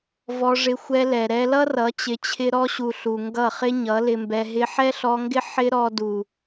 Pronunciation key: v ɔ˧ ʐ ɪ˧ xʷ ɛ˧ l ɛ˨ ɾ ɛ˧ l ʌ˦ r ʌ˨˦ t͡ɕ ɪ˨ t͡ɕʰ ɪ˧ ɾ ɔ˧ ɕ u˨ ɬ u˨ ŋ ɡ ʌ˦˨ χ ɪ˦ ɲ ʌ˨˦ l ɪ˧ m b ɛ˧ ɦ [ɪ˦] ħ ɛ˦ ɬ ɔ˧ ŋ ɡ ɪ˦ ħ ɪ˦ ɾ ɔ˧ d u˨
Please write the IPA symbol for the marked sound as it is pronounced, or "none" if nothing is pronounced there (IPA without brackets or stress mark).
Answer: ɪ˧